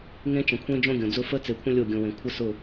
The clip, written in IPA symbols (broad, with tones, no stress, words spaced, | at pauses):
ŋẽ˦t͡ʃə̃˨kʷʰẽ˦ d͡ʒõ˦ɡʲõ˨d͡zʊ˦ fə˦t͡se˨kʷʰə̃˦ lʲo˦˨ɡʲõ˨wẽ˨ kʷʰə˦sʊ˦˨